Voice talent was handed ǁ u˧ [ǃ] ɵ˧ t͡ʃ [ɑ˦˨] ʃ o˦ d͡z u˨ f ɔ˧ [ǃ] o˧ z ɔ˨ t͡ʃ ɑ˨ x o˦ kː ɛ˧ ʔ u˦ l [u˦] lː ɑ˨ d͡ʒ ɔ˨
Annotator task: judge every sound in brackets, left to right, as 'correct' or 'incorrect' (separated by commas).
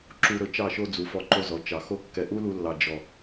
incorrect, correct, correct, incorrect